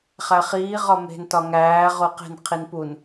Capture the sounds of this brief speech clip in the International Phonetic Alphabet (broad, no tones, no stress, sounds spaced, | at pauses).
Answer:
χ æ χ iː ʁ ɒ m e̤ n t ɒ ŋ æː ʁ o q e̤ n qʰ i n p u n